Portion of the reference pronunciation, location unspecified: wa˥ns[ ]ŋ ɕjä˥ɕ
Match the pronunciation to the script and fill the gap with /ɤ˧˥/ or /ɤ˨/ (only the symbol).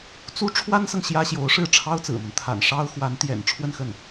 ɤ˨